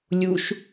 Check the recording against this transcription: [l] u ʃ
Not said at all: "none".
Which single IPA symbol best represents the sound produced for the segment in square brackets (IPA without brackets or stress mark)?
lʲ